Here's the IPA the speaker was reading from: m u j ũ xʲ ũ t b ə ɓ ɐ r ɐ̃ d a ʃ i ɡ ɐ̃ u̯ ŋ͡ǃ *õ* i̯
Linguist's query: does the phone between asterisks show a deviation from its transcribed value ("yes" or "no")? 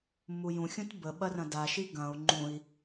yes